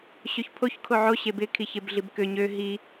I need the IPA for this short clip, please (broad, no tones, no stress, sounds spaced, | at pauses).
ɕ ø ç pʰ o ç kʰ o ʕ o ɕ e b ɪ kʰ i ç e b ɮ i b k ø ɲ ø ɦ i